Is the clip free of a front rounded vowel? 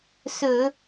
yes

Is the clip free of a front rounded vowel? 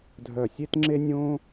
no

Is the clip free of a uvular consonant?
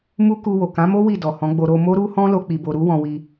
yes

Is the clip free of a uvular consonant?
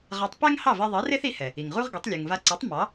no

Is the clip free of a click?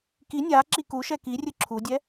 no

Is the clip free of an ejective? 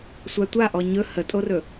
no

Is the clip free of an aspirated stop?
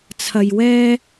no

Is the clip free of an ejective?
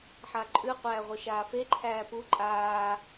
no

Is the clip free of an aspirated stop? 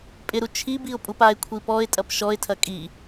no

